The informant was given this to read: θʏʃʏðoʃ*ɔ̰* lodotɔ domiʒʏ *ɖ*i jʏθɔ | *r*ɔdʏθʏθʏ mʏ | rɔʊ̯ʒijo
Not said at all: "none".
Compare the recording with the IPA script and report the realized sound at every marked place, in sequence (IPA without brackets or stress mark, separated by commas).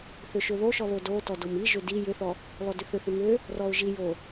ɔ, d, l